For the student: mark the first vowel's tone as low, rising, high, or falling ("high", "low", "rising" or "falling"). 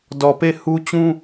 low